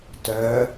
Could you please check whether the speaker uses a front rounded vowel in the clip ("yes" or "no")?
yes